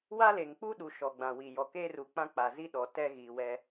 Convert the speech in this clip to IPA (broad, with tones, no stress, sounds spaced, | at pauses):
w a˦ l e˨ ŋ k͡p u˦ ɗ u˨ ʃ ɔ˨ ɡ͡b ã˨ w i˨ j ɔ˨ k eː˦ r u˨ k͡p ã˦ k͡p a˨ z i˦ ɗ ɔ˨ t ɛ˦ ɣ i˨ w ɛ˦